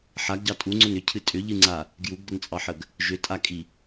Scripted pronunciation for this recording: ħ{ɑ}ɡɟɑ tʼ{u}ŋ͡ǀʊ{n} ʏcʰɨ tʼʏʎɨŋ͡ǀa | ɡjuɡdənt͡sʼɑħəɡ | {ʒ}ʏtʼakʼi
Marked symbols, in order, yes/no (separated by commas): no, yes, yes, yes